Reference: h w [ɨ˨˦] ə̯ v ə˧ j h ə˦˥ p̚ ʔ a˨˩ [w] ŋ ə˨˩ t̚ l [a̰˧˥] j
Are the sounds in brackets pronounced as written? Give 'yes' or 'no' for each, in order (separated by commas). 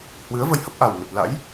yes, yes, yes